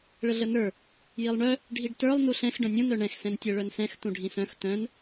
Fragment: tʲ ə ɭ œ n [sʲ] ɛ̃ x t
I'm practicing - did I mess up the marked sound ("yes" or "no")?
yes